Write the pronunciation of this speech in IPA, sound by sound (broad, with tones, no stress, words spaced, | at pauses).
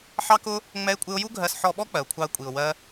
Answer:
ħɑ˦kʊ˦ | ŋ͡mɛ˦ɪ̯kʷʼɪ˦ʊ̯ ju˦ɡʱɜ˧s ħɔ˧ɓɔ˦ k͡pɜ˨ʊ̯kʷʰɑ˧ə̯kʷʼi˨ʊ̯ wɜ˦